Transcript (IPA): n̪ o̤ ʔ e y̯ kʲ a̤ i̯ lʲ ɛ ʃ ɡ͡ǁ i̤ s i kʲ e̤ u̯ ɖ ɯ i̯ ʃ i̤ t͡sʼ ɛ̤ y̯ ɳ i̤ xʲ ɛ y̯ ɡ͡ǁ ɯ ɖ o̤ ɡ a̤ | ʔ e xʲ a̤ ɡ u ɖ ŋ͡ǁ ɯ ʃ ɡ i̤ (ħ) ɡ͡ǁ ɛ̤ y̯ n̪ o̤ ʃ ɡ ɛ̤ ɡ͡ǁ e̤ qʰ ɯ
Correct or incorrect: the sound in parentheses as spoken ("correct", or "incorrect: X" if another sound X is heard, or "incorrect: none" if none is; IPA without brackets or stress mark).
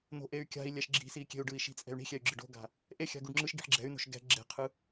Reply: correct